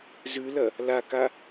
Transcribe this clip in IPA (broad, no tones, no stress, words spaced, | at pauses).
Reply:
zʉlɐ | laka